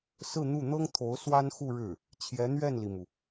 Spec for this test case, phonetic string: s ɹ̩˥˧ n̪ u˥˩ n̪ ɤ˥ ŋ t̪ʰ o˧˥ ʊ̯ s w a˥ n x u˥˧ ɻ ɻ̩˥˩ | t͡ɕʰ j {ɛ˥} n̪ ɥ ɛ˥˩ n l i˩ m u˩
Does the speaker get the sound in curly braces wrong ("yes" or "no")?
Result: yes